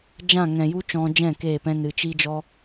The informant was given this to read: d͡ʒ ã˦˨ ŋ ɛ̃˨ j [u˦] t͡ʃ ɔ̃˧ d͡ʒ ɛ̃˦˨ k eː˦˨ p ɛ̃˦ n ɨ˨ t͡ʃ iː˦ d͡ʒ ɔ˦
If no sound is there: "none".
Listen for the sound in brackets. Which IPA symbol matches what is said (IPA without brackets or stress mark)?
u˦